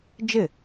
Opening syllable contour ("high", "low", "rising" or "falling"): falling